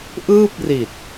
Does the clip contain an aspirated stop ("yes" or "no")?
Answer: no